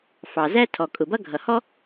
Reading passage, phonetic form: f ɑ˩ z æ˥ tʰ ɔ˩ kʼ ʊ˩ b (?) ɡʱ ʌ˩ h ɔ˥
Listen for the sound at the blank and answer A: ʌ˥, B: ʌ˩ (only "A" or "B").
A